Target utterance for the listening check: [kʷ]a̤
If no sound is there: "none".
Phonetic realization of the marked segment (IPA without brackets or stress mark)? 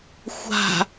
xʷ